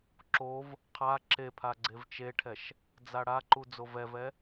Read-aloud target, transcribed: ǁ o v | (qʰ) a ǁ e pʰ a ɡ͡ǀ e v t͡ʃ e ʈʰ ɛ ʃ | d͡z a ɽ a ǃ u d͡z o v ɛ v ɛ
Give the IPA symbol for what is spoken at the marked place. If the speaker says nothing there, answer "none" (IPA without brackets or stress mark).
qʰ